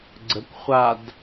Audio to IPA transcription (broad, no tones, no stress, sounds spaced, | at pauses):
ɡ͡ǀ ə kʷ χʷ a d